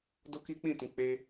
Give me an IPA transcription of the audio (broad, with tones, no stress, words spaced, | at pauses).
do˦ki˦k͡pĩ˦˨tũ˨ k͡pe˧